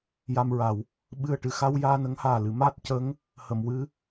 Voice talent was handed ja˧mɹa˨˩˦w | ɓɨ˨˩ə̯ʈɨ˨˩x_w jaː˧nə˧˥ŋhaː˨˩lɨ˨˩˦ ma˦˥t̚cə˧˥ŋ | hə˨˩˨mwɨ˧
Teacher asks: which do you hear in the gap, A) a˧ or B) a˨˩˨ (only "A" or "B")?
A